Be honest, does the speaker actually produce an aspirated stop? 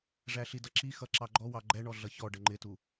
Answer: no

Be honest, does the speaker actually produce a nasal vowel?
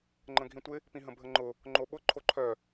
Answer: yes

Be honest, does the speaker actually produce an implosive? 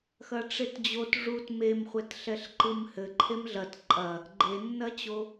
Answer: no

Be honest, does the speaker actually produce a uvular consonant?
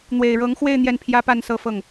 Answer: no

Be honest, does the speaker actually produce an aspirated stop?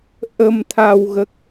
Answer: yes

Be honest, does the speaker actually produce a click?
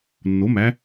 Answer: no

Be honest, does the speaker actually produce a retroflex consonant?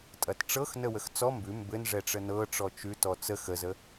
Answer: yes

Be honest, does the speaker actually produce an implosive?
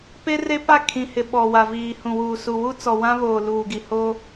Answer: yes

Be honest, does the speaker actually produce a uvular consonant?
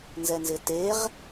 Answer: yes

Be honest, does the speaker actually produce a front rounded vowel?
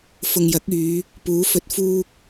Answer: yes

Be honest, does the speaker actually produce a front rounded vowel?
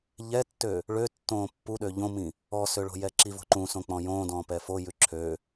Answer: yes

